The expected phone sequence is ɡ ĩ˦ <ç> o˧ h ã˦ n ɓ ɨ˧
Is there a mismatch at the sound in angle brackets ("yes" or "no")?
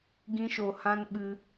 yes